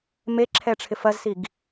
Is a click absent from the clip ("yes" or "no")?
no